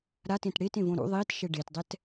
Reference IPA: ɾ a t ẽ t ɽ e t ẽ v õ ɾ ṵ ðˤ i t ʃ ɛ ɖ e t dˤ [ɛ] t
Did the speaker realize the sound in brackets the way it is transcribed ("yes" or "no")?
yes